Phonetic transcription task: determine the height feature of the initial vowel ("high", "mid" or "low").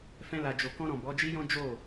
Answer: mid